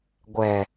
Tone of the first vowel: low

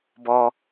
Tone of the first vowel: high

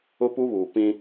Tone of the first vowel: high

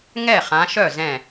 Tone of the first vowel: falling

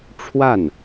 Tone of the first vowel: falling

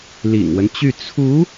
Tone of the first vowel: low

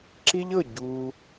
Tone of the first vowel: high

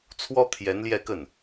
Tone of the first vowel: high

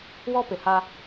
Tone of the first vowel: high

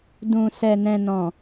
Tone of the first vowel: low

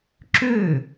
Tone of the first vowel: falling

